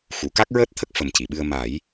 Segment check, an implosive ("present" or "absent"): present